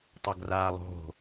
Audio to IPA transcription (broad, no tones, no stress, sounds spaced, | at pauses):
tˤ a ɡ r aː lˠ o̤